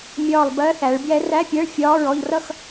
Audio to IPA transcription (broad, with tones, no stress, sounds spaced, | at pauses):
mʲ ɒː˦˨ lˠ b ɜ˧˥ θ æ˩˧ ɭ b j ɛ˧˥ r æ˧˥˧ pʲ ɛ˧˥˧ ɭ fʲ ɒː˧˥˧ ɹ ɔ˦˨ ʎ r ʌ˦˨ x